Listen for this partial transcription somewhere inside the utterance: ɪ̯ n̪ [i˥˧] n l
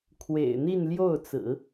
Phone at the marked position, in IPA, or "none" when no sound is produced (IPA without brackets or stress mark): i˥˧